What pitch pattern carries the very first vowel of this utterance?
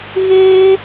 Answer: high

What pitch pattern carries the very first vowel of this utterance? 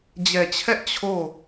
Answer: low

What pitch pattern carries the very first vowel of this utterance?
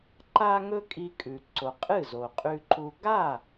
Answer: high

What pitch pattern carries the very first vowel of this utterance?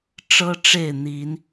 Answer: high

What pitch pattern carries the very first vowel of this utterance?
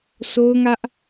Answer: high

